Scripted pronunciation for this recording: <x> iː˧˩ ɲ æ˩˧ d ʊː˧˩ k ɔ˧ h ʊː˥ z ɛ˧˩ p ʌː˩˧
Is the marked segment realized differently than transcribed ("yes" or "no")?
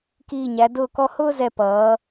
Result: yes